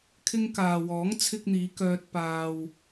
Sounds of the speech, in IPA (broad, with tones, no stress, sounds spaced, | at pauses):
kʰ ɪ˧ ŋ k aː˨ w ɔː˨˥ ŋ t͡sʰ ɪ˧ k̚ n̪ iː˨˧ k œː˧ t̚ p aː˧ w